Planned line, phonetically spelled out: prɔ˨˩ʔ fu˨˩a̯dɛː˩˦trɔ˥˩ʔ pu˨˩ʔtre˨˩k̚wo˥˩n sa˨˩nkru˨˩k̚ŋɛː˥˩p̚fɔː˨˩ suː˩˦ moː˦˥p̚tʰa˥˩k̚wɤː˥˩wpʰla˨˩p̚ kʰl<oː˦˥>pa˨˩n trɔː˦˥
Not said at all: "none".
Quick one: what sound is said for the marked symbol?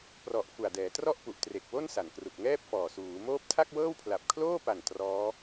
oː˥˩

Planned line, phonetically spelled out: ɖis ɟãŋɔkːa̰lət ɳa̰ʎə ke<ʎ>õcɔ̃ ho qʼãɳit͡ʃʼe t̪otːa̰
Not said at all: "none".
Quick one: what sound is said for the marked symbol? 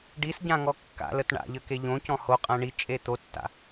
ʎ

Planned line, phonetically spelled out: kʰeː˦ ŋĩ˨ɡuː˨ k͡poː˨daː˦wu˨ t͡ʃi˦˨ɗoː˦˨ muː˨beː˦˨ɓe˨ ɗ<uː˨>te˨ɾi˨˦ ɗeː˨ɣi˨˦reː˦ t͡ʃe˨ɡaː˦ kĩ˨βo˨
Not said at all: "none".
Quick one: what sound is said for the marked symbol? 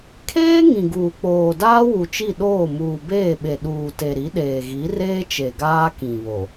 uː˨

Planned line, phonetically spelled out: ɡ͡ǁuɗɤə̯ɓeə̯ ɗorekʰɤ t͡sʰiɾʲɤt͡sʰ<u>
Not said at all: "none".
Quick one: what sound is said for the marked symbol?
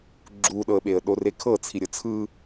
ɯ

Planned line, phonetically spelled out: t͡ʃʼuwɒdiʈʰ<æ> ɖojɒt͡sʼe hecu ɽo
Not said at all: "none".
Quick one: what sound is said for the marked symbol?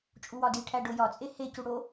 æ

